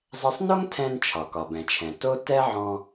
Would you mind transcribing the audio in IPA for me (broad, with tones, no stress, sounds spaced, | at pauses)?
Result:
zˤ ɛ˧ sˤ n o˥ ŋ tʰ ɛ̃˧ n t͡ʃʰ ɒ˩ k ɒ˩ b ɛ̃˩ t͡ʃʰ ɛ̃˩ t o˥ t ɛ˥ ʕ ɔ̃˧